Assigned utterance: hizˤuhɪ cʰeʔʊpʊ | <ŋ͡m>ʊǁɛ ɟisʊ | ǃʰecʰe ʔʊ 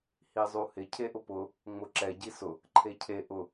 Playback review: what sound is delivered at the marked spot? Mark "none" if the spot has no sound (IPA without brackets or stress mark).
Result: ŋ͡m